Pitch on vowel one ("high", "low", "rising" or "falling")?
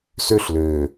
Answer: high